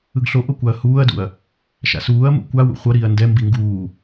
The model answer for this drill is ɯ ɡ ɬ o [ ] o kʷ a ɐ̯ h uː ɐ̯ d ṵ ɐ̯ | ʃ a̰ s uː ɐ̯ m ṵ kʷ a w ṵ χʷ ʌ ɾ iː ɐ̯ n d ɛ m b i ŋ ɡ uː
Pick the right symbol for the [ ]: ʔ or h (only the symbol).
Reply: ʔ